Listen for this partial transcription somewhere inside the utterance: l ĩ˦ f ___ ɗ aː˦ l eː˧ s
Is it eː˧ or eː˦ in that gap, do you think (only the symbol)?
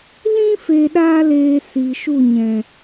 eː˧